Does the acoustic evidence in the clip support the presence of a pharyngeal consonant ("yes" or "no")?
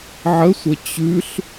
yes